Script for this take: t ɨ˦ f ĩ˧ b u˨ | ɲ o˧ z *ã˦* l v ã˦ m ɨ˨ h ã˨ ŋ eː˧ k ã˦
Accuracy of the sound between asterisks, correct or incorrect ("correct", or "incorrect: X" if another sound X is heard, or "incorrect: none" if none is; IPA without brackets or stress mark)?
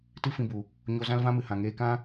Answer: correct